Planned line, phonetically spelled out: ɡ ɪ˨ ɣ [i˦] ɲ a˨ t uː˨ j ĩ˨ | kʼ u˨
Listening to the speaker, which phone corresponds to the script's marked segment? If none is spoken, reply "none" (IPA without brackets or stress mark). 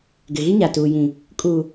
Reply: i˦